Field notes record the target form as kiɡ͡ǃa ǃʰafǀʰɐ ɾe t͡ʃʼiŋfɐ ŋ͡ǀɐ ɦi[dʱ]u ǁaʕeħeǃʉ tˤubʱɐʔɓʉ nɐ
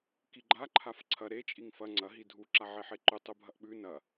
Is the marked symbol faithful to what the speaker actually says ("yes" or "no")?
yes